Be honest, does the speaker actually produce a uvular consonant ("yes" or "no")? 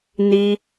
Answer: no